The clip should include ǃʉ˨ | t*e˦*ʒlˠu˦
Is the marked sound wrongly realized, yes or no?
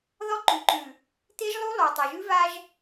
no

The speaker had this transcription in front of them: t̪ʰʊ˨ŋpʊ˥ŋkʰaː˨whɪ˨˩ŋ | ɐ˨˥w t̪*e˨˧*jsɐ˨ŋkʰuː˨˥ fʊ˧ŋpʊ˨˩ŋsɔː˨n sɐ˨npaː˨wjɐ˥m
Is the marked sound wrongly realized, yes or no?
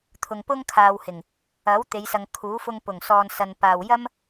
no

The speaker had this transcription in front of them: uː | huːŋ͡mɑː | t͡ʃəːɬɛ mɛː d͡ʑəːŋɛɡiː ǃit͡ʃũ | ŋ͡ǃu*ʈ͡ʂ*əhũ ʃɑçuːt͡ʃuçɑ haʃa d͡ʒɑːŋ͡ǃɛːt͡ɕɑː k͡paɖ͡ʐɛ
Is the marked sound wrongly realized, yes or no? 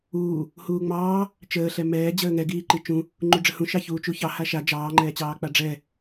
yes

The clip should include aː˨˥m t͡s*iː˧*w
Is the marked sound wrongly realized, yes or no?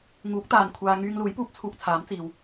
no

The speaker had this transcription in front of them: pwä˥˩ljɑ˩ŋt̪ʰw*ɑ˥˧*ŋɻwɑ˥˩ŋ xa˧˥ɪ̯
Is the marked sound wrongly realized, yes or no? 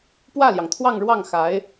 no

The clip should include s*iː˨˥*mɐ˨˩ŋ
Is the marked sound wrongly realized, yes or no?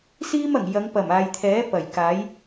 yes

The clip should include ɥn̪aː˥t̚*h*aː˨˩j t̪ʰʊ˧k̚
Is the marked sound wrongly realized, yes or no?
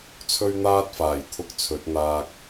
yes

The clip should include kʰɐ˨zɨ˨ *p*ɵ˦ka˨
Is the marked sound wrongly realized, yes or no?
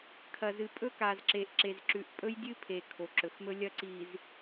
yes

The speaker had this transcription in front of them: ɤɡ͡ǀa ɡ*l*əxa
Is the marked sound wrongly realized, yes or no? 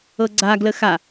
no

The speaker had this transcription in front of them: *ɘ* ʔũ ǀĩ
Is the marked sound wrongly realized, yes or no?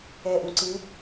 yes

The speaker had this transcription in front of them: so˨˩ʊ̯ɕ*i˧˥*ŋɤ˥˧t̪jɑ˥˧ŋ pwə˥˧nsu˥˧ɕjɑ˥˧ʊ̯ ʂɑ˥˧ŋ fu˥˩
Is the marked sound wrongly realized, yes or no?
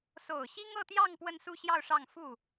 yes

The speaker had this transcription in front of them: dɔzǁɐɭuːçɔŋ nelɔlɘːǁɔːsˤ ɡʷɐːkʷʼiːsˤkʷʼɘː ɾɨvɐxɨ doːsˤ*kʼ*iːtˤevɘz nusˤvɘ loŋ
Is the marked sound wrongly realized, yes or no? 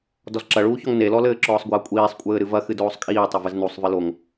no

